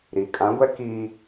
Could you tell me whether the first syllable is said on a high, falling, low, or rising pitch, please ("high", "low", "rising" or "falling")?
low